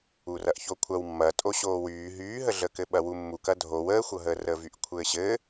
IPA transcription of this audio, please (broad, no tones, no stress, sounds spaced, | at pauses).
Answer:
u r ɐ ʔ ç o kʷʰ ɐ w mː ɐ tʼ o ɕ oː w yː ɦ yː ɦ ə ɮ əː k ɘ ɓ ɐ w u mː u k ɐ dʱ o w əː xʷ ɤ ɦ əː r əː v y ʔ kʷʰ ɘː ɕ ɘ